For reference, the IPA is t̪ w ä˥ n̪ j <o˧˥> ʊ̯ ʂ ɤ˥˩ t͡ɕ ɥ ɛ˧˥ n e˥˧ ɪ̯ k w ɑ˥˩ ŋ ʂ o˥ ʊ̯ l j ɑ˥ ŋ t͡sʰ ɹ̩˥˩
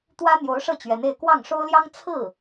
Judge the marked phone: correct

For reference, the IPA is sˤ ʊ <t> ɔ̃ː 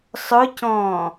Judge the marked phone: incorrect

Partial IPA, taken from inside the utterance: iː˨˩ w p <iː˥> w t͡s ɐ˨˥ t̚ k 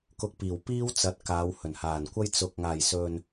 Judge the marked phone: correct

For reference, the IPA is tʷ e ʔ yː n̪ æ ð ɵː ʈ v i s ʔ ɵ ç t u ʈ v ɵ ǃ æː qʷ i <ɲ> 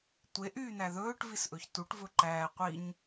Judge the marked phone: correct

